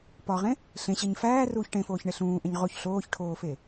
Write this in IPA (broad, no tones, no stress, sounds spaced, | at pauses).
p ɒ ʁ ẽ | ɬ ẽ ɕ e ɲ f æː r uː ç ʈ ẽ f oː ç ɳ e ɬ ũː ʔ ẽ ɲ ʁ o ç ɬ oː ç ʈʰ oː f e